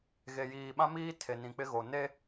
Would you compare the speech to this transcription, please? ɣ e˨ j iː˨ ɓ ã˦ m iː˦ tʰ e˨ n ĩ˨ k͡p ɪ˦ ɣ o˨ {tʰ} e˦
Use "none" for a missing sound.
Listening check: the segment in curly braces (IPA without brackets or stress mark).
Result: n